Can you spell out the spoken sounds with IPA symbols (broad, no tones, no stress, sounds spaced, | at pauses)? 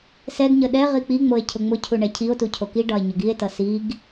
s ɛ ɡ ɲ ə ɗ ɛ ʁ i k͡p i ŋ͡m o e̯ cʰ ʊ ŋ͡m ʊ cʰ u ɳ ɛ cʰ i o̯ t u cʰ o k i ɖ ɒ e̯ ɲ ʊ ɡ i e̯ t ʌ s i ɡ